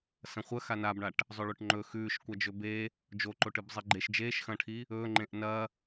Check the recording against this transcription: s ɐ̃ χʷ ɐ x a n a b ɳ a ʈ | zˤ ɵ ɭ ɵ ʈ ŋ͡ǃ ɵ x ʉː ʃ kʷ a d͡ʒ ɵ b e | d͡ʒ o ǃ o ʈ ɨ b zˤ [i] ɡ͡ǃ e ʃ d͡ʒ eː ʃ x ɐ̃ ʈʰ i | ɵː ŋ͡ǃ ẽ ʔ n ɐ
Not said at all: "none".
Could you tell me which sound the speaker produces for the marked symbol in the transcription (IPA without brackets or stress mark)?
i